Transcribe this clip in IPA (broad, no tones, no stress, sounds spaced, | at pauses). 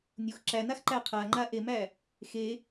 nʲ u x ǁ æ n a x ǃ æ qʰ a ŋ͡ǃ a ʔ e m æ | x e